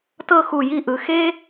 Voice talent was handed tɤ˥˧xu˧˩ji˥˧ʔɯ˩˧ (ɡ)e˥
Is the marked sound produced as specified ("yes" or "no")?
no